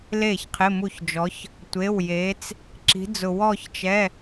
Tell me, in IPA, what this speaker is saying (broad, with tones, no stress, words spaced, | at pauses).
le˥˩çqʰɪ˧˥˧mu˥˩çd͡ʒɔ˧˥ç | tʷe˧˥˧wje˧˥t͡s | ǁi̤˧˥d͡zʊ˧ wɔ˥˧çt͡ʃɛ˧˥˧